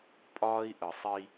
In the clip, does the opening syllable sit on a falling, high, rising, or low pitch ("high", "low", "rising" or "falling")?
high